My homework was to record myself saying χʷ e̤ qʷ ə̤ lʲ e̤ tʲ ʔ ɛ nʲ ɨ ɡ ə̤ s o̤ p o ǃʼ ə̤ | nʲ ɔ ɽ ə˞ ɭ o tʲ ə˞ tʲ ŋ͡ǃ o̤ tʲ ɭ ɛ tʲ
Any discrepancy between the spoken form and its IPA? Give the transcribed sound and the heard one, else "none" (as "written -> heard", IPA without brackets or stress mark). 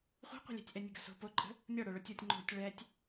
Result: none